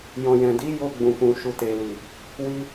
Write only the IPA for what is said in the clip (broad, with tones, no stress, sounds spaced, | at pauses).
j ɔ̃˨ j ɛ̃˨ d i˨˦ j o˧ ɡ͡b ũ˨ k ũ˨ ʃ u˨ t e˨ l i˨ | w i˧